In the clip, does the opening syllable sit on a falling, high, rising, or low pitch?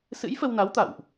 rising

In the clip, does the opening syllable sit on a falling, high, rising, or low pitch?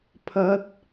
rising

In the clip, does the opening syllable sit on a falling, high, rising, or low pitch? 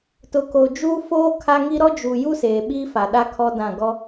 low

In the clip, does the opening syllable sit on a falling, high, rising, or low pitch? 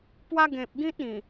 high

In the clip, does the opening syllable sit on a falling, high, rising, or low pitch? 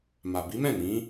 low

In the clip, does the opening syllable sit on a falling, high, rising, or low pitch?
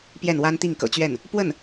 falling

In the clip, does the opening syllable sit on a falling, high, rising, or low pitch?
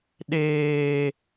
low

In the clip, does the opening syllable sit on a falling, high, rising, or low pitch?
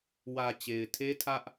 low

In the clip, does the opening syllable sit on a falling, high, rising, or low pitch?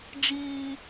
high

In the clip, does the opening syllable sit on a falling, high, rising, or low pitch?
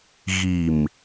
low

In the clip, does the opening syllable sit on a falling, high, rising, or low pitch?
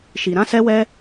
low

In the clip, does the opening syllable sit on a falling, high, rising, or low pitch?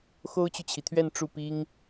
high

